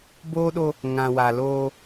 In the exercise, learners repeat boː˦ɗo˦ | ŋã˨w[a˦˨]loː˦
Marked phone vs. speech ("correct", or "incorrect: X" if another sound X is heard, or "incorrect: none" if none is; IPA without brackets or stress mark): incorrect: a˨